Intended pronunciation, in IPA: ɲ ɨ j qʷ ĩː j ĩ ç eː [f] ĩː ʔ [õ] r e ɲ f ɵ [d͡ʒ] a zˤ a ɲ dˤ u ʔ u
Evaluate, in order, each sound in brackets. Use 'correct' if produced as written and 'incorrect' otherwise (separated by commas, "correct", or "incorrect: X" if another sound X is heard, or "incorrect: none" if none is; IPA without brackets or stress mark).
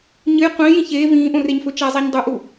incorrect: v, correct, incorrect: t͡ʃ